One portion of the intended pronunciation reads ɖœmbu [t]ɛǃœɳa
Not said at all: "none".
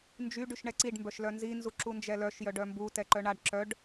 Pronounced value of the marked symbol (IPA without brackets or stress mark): t